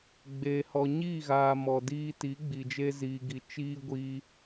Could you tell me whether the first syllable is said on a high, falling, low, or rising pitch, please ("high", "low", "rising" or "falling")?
low